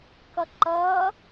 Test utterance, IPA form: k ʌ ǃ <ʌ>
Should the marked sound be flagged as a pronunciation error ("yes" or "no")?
no